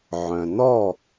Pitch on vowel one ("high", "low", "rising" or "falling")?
low